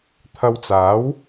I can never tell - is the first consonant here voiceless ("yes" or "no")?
yes